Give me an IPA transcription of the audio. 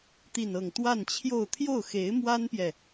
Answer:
t̪ i˥˧ n ɤ˥˧ ŋ t̪ w a˥˧ n t͡ɕʰ j o˥˧ ʊ̯ t̪ʰ j o˥˩ ʊ̯ x e˧˥ ɪ̯ m w a˥ n p j ɛ˨

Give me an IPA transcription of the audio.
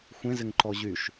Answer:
xʷ ẽ z ɪ ŋ ǃ ɔ ʑ y ʃ

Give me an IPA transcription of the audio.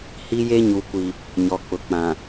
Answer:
h i˦ j e˦ ɲ u˨ kʷ i˨ | ɲ ɔ˨ k͡p ʊ˨ k͡p ã˨

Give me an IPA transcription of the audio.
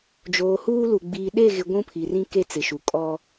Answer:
d͡ʒ oː˨ h uː˦ l u˨ ɡ͡b iː˨ ɗ e˦˨ ɣ ɪ˨ ɡʷ ũ˦ pʰ i˨ r ĩ˦ k e˦ t͡s ɪ˨ ʃ u˨ kʼ ɔ˦

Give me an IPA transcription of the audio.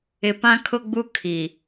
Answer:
ɪ˨ p ã˦ kʰ ʊ˦ ɡ͡b u˦ kʰ i˨

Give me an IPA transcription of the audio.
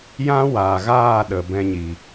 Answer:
j ã˦ w aː˨ ɣ aː˦˨ ɗ ə˨ b ɛ̃˧ ɲ i˨

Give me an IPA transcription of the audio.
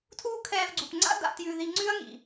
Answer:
tʰ uː˦ kʰ ɛː˧ v ɡ͡ǀ u˨ p ŋ͡ǀ a̰˦ d a̰˧ t j ʉ˧ ð i˧ ŋ͡ǀ ʉ˦ ɐ̯ ŋ ḭ˨

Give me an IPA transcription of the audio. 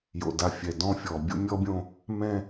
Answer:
j o̰˨ d a˨ fʲ ɛ˨ d ɔ̃˦ fʲ ɔ˨ bʲ o̰˦ mʲ ɔ˦ bʲ õ˦ | m ɛ̃˦

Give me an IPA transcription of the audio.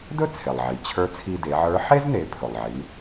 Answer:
d ɵ˥ t͡sʰ e˩ lˠ ʕ i˩ t͡ɕʰ ə˞˧˥ t͡sʰ i˧ d e˩˧ ʕ ə˞˧˥ ħ e˥ z n e˩˧ pʰ ɵ˩ lˠ ʕ i˩˧

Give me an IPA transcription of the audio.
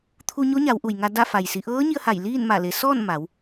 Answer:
t̪ʰ u˧ ɲ o˧˥ ɲ a˩˧ w ʔ u˩ j ŋ a˧ d a˥˨ f a˩ j s i˩˧ ʔ ɤː˧˥ ɲ i˧ ə̯ h a˧˩ j l iː˥˨ n m a˧˩ l e˩˧ s ɔː˥˨ n m a˩˧ w

